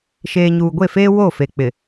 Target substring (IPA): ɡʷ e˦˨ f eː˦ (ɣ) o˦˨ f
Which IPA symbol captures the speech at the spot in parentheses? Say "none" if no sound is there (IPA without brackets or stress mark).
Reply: w